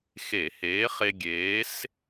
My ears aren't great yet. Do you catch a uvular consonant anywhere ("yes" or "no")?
yes